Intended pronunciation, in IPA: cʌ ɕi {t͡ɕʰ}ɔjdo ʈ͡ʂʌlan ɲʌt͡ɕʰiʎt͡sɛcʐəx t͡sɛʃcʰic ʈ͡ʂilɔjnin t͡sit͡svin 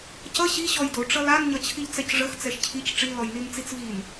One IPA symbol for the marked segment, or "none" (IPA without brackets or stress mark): ɕ